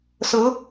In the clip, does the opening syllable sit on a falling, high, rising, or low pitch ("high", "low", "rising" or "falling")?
rising